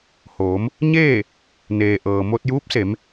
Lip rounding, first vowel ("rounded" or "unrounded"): rounded